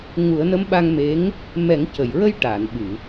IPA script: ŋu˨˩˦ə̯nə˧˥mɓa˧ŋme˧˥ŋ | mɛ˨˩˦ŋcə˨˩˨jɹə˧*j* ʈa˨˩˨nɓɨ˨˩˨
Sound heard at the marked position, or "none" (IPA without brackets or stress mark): j